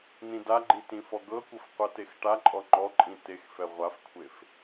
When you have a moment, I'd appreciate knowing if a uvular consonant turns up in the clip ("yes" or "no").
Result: yes